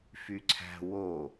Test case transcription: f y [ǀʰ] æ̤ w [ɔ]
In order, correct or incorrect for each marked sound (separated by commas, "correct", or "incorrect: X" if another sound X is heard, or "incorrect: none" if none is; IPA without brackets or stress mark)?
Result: correct, incorrect: o